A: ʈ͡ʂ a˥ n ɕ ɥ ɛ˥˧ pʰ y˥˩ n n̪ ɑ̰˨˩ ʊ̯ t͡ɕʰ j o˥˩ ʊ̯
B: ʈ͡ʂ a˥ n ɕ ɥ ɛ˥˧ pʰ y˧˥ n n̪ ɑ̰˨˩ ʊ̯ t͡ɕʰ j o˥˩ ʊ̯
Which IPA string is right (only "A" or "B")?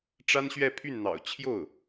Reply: A